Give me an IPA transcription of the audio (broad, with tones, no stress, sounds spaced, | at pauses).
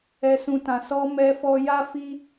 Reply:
ɛ˨ s ũ˨ t ã˨ s ɔ˧ m ɛ˧ f ɔ˧ j a˦ f i˦